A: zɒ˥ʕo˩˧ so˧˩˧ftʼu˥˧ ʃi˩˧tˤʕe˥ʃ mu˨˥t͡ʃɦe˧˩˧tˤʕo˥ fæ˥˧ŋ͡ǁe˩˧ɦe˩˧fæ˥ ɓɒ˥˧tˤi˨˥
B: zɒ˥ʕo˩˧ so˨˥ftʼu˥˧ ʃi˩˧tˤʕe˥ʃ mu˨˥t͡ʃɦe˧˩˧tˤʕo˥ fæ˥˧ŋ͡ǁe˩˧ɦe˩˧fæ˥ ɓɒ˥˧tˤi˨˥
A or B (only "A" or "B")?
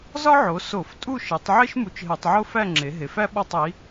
A